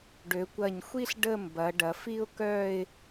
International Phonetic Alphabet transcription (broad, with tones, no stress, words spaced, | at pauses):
ɖø˩˧kʷɐ˧˩ɲxʷi˥ɬ ɖə˥˧ mbɐ˩˧ɖɐ˩˧f i˥ʊ̯kœ˥˧ɪ̯